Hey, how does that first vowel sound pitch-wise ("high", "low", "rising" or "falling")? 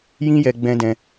high